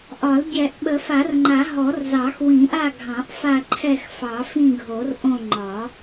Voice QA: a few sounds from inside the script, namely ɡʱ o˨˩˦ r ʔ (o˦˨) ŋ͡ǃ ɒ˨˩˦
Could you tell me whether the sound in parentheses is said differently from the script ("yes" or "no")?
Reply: yes